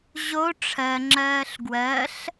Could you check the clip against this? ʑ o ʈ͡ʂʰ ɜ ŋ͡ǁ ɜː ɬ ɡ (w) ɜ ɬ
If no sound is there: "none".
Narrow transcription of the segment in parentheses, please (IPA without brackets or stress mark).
w